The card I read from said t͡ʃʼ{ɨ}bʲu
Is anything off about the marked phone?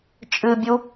no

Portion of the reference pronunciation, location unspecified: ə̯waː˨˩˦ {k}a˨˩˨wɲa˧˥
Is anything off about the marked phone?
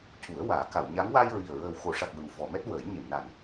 no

